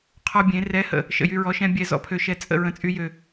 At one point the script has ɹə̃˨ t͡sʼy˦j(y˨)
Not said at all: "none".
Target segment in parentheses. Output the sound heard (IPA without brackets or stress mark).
ø˨